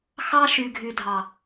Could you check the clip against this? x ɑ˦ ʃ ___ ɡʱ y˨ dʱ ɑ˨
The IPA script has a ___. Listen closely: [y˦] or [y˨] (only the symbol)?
y˨